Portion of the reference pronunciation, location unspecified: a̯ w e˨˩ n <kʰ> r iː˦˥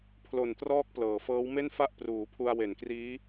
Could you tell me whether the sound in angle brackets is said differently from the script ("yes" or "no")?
yes